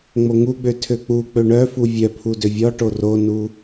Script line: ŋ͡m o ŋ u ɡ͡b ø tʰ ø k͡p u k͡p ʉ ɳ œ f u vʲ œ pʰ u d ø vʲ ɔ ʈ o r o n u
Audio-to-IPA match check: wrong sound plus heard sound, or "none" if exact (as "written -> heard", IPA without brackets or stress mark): ʉ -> ø